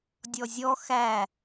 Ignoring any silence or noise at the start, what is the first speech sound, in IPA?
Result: dʲ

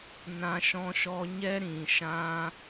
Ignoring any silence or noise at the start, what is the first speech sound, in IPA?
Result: n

